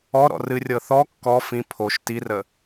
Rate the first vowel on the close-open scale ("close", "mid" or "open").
mid